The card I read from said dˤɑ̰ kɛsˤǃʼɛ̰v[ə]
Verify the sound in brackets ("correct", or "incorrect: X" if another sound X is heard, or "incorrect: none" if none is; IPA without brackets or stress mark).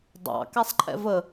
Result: correct